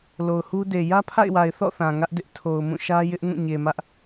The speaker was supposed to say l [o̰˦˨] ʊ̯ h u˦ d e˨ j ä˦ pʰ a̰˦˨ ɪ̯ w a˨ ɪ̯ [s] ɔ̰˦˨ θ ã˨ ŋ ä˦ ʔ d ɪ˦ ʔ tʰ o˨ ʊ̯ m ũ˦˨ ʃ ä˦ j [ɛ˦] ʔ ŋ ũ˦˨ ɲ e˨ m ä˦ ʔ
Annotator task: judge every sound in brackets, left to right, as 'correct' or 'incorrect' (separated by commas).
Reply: incorrect, incorrect, incorrect